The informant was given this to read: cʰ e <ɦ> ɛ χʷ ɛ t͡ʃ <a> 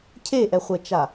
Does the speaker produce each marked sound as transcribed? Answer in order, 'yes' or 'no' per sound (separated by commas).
no, yes